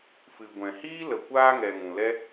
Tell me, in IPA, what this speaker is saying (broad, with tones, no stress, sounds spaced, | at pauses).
f ɨ˨ ɡʷ ɛ̃˨ h iː˦ l ə˨ kʷ aː˧ ŋ ɛ˨ ŋ ũ˨ l ɛ˧